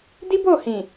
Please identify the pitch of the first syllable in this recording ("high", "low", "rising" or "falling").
high